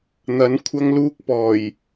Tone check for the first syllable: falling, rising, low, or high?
rising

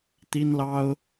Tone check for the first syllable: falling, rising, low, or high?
high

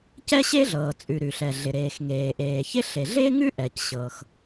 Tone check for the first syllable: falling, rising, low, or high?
high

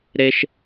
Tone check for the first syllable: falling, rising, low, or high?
high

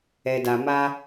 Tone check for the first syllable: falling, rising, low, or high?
low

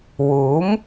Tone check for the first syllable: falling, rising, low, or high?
rising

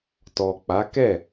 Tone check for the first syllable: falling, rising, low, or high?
low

